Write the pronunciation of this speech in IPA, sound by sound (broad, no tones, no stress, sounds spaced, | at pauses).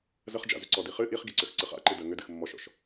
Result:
z ə χ d͡ʒ a̰ z ʏ ǀ ɔ d i χ ɨ ʔ i χ ɡ i ǀ ʏ x ǀ ɨ χ a̰ ǃ ɨ d ə ŋ ʏ d ɨ x mː ɔ ʃ ɔ̰ ʃ